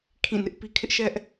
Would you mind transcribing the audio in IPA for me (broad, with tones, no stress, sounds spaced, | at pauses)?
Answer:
kʰ ĩ˦˨ n ɪ˦ ʔ p i˦ kʰ ɪ˦ ʔ ʃ ɛ˦ ʔ